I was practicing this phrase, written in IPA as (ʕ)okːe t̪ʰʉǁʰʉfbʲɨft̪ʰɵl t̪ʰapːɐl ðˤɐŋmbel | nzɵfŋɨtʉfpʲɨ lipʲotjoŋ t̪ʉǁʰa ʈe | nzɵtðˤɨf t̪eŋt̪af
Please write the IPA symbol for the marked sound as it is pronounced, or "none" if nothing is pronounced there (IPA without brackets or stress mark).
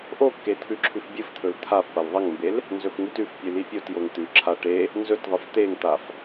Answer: ʔ